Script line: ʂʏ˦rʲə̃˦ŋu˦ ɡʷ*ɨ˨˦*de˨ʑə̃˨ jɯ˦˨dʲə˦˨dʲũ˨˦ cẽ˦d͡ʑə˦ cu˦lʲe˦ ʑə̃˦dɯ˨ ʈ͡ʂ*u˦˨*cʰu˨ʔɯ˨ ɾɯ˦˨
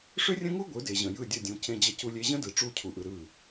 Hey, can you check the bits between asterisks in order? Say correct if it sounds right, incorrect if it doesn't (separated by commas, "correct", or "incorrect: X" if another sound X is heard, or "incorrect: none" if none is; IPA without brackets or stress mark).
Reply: correct, correct